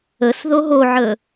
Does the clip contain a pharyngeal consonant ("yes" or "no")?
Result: yes